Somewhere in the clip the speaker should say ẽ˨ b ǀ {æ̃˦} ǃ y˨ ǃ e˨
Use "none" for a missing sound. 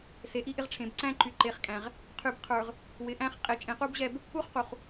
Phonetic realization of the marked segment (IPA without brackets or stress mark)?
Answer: æ̃˦